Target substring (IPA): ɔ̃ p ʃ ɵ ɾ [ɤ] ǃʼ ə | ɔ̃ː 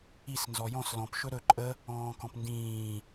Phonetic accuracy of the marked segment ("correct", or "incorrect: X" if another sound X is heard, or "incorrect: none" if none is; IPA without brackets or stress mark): incorrect: ɵ